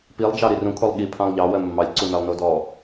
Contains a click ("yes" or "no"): yes